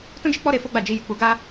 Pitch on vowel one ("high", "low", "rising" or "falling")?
high